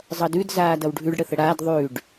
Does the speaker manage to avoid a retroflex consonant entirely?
no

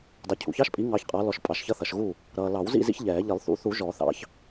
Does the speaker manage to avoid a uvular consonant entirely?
no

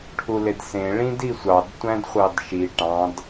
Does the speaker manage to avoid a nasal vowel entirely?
no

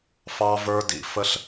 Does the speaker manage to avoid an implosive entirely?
yes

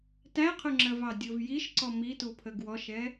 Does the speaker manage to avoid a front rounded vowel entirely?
yes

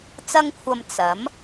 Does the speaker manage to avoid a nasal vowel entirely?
yes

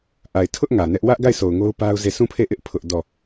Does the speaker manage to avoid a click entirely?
yes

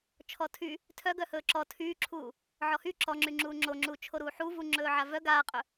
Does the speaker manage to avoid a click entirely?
no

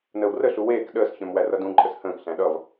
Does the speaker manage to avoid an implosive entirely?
no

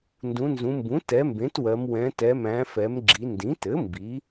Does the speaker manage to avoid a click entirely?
no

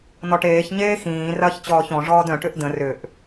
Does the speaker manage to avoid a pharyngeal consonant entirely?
yes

